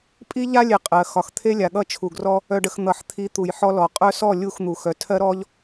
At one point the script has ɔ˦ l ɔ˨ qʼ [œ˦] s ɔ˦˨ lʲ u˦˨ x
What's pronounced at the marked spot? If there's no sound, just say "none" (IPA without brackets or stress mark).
œ˦